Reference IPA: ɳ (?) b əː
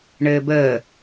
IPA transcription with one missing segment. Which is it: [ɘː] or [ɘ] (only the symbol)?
ɘː